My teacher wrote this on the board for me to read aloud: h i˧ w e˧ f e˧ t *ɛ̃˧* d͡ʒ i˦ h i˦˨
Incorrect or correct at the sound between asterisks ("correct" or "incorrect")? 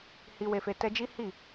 incorrect